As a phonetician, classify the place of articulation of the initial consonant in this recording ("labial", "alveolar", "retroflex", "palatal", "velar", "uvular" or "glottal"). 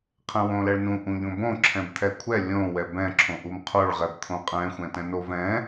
uvular